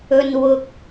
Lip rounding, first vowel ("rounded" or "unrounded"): rounded